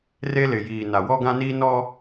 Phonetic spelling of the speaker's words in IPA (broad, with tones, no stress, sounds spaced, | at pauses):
r e˦ l ɪ˨ j iː˨ n a˨ w ɔ˦ ɡ ã˦ n i˦ n ɔ˦